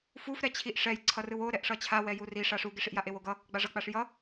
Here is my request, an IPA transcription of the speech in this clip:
f u f ɾ ɛ t͡ɕʰ i ʔ ʂ ɛ j ǀʰ ʌ r ɯ w o ɾ ɛ ʔ ʂ ʌ t͡ɕʰ a w ɛ j u r i ʂ a ʂ u ɡ e ʂ i ʔ j a ʔ e w o ɡ ʌ | ɡ͡b a ʐ ʌ k͡p a ʂ j ʌ

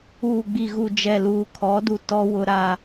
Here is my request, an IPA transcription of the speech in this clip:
uː˨ ɡ͡b i˨ ɣ u˨ d͡ʒ ɛ˨ l uː˨ kʰ ɔ˨˦ d u˨ t ɔ˦ w ʊ˦ ɾ a˦

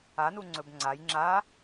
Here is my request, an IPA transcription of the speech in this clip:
a n u ŋ͡ǀ ɵ b ŋ͡ǀ a j ŋ͡ǁ a

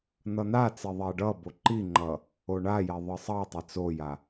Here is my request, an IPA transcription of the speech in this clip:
n̪ ʌ n̪ a t͡s e ðˤ ɛ ɖ ʌ b o ǃ i ŋ͡ǃ ʌ | o ɳ a j ɛ ðˤ ɯ sˤ ʌ tˤ ɛ t͡s o j a

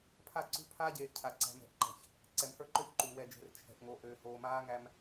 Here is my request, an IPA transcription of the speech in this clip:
pʰ a˦˨ ǀ ṳ˦ pʰ aː˦ ɟ eː˨ ʔ cʰ a˨ ǀ æ̤˨ m ɛ̤˨ ʔ ǃ æ̤˨ ç | ǀ ɛ˨ m h ə˞˦ ǃ ø˦ ç ǃ uː˨ w ɛ˨ d͡ʒ e̤˨ r t͡ʃʰ ɛ̤˨ ʔ ŋ o˨ ʔ øː˨ h oː˨ m aː˦ ŋ æ˦ m

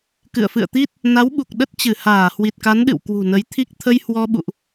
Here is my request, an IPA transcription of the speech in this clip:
k ɨ̰˧˨ ə̯ f ɨ̰˧˨ ə̯ t̪ i˦˥ t̚ | n a˨˦ w ɓ u˨˩ k̚ ɗ ə˦˥ t̚ t͡ɕ ɨ˧˩ h aː˧˩ h w i˨˩ t̚ k a˨˦ n ɗ ɨ̰˧˨ w k w ṳ˨˩ n ə˨˦ j t̪ʰ i˦˥ k̚ t̪ʰ ə˧ j h w ɔ˧ ɓ ṵ˧˨ ʔ

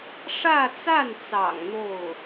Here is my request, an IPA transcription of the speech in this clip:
ʂ ä˥˧ t͡s a˥˩ n t͡s ɑ̰˨˩ ŋ n̪ o˥˩ ʊ̯

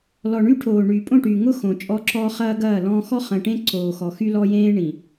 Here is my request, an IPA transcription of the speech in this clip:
l ɔ˨ ɳ y˦ ʈʰ oː˨ ɳ yː˨ pʼ õ˦˨ ʈ yː˨ ŋ ʊ˦ x õ˨ t͡ʃʼ ɔ˦ ǁ ɔ˦ χ ɐː˦ ɡ ɐː˦˨ l ɔ̃ː˦ x ɔ˦ χ ɐ̃˨ ʈ ẽ˦ ǀ oː˨ x ɔ˨ x y˦ l ɔ˦ j ẽː˦ ɳ ĩ˨

